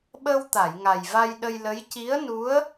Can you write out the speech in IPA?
ɓ ə˧ w t̪ a˨˩˨ j ŋ a˨˩ j v a˧ j ɗ ə˧ j l ə˧˥ j c i˧˥ ə̯ n u˧˥ ə̯

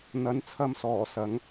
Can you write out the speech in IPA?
n̪ ɐ˨˧ n t͡sʰ ɐ˧ m s ɔː˨˩ s ɐ˨˧ ŋ

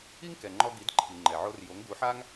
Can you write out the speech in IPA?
i˥ ŋ k ɛ˩ ŋ͡ǃ ɔ˧ ɡ i˩˥ d ǃʰ i˩ ŋ͡ǃ ɛ˩ ʕ o˧ r j o˩˥ ŋ ɡ u˩˥ ħ a˥ ŋ

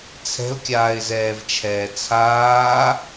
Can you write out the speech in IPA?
t͡sʰ ɛ̤ ʊ̯ kʲ aː ɪ̯ z ɛː v t͡ʃʰ ɛː t͡sʰ aː

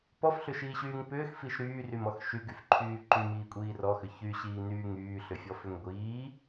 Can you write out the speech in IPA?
p ɔ f ɬ ʏ ʃ iː ɕ yː ŋ p ʏː x f i ʃ ɾ yː r y m ɔ x ʃ y ɡ y f ǃʰ yː ǃ y m iː kʷʼ iː r ɔ x ʏ ç y ɕ iː n yː ŋ yː ɬ ʏ fʲ ɔ f ʏ ŋ ɡʷ iː

